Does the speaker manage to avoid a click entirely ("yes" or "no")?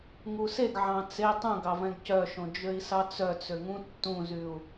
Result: yes